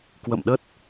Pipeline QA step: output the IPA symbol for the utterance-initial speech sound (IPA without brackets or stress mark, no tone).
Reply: k